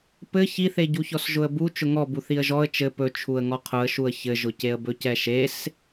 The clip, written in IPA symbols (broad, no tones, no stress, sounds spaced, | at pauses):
p ɘ ç i θ e ɟ u ç ɔ s ʒ ʊ ə̯ b u t͡ʃ ʊ ŋ ɔ b u θ i ə̯ ʒ ɔ ə̯ t͡ʃ ɘ p ɵ t͡ʃʰ u ə̯ ŋ ɔ qʰ ʊ ə̯ ʃ u ə̯ ç ɘ ʒ ʊ c e ə̯ b ɵ c ɛ ʃ e s